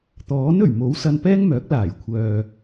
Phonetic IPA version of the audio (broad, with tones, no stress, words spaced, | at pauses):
t̪ɔː˨˥nɵ˨˩ɥmo˨˥w sɐ˧npɛː˥ŋmœː˨˥k̚laː˨˩j kʷʰœː˨